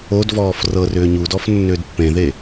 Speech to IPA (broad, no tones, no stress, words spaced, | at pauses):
odvɔːf rɤr ʏːɲudɔf nːʏːdpːẽðe